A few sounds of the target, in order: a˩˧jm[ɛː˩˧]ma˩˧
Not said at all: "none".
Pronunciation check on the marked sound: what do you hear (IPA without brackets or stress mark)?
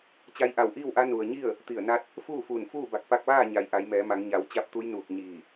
ɛː˩˧